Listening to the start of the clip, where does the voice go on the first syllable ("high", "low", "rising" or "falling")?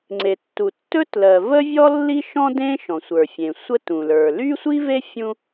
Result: low